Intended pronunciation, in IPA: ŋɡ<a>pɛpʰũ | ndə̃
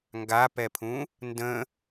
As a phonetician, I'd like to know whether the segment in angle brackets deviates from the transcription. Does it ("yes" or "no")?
no